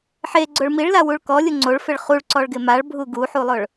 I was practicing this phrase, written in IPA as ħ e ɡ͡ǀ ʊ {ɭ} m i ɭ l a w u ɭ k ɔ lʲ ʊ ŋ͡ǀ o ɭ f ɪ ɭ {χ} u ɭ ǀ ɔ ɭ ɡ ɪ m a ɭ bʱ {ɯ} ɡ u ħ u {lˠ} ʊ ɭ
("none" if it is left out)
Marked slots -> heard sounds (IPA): ɭ, χ, u, lˠ

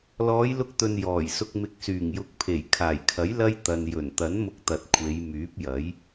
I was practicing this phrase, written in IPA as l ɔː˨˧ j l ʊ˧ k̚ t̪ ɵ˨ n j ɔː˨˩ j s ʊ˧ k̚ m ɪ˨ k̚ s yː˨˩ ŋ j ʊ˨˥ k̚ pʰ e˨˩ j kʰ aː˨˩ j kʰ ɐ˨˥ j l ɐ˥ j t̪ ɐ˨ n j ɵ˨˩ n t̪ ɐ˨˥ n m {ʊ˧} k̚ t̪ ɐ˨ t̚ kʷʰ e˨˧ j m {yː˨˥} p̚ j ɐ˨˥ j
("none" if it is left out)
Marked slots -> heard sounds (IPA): ʊ˧, yː˨˥

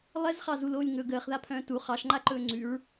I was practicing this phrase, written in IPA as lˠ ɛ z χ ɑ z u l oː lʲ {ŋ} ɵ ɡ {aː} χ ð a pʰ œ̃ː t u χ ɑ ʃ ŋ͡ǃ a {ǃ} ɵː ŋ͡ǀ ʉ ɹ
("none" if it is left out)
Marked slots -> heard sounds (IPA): ŋ, əː, ǃ

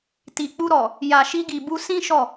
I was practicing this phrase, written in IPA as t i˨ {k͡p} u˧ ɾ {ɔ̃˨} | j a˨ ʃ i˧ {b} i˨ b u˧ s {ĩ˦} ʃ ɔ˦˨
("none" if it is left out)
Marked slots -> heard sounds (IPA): k͡p, ɔ˨, ɡ, ĩ˦

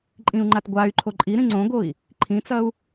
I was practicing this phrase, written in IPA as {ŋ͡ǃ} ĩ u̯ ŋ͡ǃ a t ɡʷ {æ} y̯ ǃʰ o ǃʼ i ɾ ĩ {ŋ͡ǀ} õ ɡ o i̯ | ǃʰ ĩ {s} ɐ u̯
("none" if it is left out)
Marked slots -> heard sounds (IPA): ǃʼ, a, ŋ͡ǀ, t͡s

